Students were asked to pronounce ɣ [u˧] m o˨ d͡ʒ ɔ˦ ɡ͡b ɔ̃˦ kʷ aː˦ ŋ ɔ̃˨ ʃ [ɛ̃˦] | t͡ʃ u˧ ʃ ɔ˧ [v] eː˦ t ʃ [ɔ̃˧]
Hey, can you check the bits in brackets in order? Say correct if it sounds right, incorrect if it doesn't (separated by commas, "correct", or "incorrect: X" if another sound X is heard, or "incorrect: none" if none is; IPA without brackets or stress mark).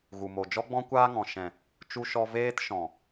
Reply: incorrect: u˨, incorrect: ɛ̃˨, correct, incorrect: ɔ̃˨